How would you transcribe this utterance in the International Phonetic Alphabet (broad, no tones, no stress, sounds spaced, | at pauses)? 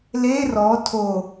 l e r ɔ tʰ o